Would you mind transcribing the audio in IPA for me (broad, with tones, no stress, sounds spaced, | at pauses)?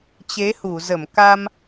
t͡ɕ e˨˦ h u˧˩ z ə˧˩ m k a˧ m